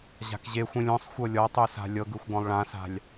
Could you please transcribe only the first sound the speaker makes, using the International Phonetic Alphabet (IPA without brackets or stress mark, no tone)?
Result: ʑ